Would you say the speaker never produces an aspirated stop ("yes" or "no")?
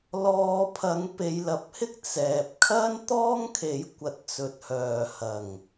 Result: no